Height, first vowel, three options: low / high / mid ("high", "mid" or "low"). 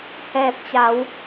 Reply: mid